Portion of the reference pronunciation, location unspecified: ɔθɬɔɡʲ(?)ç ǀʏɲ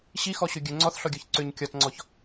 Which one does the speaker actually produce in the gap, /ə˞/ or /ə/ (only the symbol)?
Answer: ə˞